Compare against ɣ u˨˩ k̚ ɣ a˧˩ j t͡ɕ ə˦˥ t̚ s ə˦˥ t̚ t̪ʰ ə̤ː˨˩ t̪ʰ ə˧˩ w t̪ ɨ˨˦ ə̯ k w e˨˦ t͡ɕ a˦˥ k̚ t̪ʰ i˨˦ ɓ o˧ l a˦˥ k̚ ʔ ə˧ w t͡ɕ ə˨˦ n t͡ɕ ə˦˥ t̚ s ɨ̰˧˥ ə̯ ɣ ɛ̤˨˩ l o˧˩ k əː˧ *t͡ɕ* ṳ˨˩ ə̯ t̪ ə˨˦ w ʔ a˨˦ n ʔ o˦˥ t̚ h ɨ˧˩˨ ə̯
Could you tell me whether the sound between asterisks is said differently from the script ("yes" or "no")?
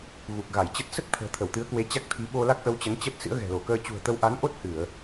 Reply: no